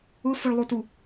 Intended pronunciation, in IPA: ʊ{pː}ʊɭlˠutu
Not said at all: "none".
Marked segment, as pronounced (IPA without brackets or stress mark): f